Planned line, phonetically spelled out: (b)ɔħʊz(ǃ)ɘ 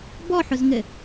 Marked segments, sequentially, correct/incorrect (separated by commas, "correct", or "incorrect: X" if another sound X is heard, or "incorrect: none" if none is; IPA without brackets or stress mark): correct, incorrect: ŋ